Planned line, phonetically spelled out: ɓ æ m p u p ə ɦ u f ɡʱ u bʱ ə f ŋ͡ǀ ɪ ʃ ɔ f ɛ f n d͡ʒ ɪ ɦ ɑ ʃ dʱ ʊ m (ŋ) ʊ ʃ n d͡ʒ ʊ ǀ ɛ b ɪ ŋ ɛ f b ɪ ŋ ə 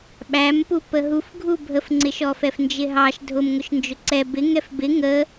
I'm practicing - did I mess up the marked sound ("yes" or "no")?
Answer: no